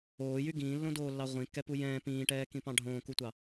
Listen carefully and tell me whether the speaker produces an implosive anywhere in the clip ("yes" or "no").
no